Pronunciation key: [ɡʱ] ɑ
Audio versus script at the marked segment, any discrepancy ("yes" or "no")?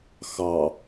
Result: yes